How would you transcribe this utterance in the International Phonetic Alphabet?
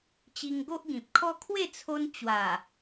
t͡ɕi˧ŋɡo˦ʔɡĩ˨p̚kʰɔ˦ kʰwe˥˧t͡sʰo˧n t͡ɕwa˨˩

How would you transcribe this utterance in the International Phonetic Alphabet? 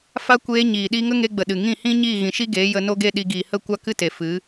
fa˦kʷeː˧ ɲiː˨ɗi˦ ŋə˦ŋe˧ɡ͡bə˨ ɗɨ˨ ŋĩ˦˨hĩ˦ ɲiː˦˨ɣĩ˨ʃi˦ɡeː˨˦ jə˧no˦ɡe˦ ɗi˧ ɡiː˨hə˦˨ kʷa˦kɨ˦te˨ fɨ˨˦

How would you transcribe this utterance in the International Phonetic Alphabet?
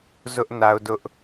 zʊ˦ʔna˦ʊ̯dʊ˦ʔ

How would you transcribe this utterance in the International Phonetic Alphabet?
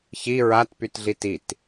çi ɹatpytɮit it

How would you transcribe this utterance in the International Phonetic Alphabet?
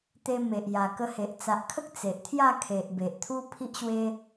t̪e˧me˨ʔ ja˨˩kə˧he˨ʔ t͡sa˨ʔkʰə˦k̚ t͡se˨ʔt̪ʰja˥˧kʰe˨ʔ be˨ʔt̪ʰu˦pʰi˦ʔɕwe˦

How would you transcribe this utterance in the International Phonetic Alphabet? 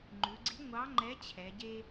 ŋ͡ǃʉ˩˧ɡ͡ǀi˨˥ ŋʷɑ˨˥ŋ͡ǃɛ˨˥ t͡ɕʰɛ˩˧ɟe˦

